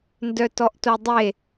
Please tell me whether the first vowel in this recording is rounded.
yes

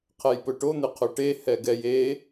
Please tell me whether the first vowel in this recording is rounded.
no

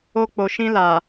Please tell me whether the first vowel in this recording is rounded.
yes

